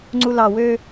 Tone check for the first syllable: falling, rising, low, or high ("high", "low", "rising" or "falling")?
low